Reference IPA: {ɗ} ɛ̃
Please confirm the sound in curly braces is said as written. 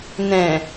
no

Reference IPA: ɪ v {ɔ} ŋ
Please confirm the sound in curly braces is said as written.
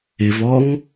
yes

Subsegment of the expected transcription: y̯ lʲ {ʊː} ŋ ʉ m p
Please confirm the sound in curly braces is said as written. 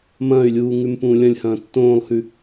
no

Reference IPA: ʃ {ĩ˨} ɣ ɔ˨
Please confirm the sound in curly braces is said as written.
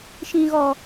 yes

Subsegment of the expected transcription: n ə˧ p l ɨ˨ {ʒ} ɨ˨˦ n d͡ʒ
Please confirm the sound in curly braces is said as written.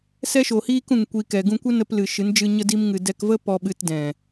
no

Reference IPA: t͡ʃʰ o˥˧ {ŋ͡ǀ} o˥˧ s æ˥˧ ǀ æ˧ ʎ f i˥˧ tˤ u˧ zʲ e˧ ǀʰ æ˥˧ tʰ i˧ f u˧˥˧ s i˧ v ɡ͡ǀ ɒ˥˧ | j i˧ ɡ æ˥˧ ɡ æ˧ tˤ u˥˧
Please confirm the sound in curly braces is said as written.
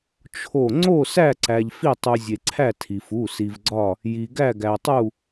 yes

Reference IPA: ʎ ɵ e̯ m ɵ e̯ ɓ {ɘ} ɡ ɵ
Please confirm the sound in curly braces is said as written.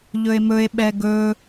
no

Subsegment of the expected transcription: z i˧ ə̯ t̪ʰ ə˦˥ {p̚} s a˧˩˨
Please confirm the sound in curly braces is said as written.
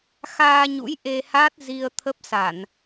yes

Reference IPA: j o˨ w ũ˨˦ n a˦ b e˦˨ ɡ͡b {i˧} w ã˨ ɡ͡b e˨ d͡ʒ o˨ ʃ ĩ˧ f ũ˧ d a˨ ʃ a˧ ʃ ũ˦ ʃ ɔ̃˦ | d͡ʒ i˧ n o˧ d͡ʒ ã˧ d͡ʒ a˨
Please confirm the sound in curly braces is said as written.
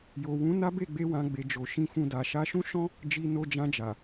no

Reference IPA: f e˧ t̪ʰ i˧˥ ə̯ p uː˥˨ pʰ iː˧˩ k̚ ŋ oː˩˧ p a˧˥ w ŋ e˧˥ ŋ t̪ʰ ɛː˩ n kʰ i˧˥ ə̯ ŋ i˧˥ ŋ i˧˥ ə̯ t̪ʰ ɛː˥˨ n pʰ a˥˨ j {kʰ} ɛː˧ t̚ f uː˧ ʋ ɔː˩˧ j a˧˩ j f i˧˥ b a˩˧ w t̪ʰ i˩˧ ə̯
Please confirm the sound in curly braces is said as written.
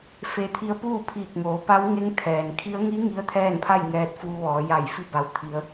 no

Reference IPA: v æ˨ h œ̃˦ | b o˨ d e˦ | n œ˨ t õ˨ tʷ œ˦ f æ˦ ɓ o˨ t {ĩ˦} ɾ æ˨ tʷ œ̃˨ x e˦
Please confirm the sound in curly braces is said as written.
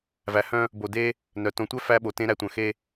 no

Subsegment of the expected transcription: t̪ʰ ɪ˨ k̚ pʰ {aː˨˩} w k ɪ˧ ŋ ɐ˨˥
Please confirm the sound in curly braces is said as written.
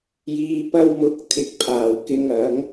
yes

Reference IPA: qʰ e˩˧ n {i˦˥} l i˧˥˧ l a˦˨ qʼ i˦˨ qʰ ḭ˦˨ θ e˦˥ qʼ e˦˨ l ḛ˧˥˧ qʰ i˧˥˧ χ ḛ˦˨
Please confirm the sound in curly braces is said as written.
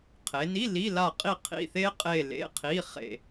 no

